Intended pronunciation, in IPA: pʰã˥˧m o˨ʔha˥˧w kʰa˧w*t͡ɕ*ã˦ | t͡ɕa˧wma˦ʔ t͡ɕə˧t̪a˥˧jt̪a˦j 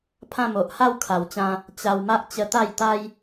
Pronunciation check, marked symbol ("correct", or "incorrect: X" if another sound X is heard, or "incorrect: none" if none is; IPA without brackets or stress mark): correct